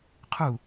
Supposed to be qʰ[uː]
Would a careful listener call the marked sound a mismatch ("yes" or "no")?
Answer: yes